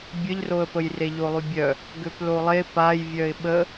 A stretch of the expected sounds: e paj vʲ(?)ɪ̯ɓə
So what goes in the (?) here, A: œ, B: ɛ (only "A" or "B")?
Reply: A